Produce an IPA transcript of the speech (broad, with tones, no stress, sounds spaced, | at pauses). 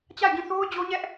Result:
t͡ɕ a˦˨ ɪ̯ ɡ ĩ˦˨ θ o˦ ʊ̯ d͡ʑ o˦ ɲ ɛ˦ ʔ